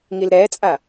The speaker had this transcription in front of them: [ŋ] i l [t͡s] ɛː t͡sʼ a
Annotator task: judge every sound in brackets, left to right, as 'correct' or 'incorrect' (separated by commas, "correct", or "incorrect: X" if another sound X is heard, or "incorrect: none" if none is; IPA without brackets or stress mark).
correct, incorrect: ɾ